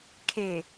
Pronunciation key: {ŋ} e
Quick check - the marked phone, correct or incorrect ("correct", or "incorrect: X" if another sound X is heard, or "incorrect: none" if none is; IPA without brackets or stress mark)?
incorrect: kʰ